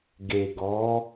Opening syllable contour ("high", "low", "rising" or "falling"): low